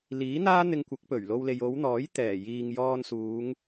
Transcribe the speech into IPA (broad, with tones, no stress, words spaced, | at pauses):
liː˨˥n̪aː˥ n̪ɪ˧ŋkʷɐ˨˥k̚pɵ˨˩ɥ lo˧wle˨j o˨˧wn̪ɔː˨˥j t̪ɛː˨˩jiː˨ŋjɔː˧nsuː˨˧ŋ